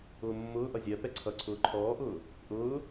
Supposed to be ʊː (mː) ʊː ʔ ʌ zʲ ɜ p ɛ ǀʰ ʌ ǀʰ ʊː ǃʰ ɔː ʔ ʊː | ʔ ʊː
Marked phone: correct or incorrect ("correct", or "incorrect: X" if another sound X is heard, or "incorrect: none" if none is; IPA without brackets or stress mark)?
correct